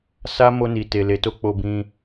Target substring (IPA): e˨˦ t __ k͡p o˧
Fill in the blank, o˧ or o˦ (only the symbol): o˦